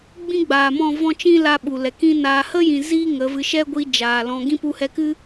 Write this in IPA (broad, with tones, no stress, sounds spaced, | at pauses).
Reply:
ɡ͡b ĩ˦ ɡ͡b aː˨ m ɔ̃˦˨ v ɔ̃˦ t͡ʃ ĩ˦ l a˦ ɓ u˨ l ɛ˨ k ĩ˦ n aː˧ h ə˦ j ĩ˨ z iː˦ ŋ ə˨˦ v ɨ˧ ʃ ɛ˦ ɡʷ i˧ d͡ʒ aː˨ l ɔ̃˧ ɡ ĩ˦ p u˧ h ɛ˧ k ɨ˦